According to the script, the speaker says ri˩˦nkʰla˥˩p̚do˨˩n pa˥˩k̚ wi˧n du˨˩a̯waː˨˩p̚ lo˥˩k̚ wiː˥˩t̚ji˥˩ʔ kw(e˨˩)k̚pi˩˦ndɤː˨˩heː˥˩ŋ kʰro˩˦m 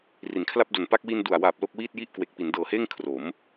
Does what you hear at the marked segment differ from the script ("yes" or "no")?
no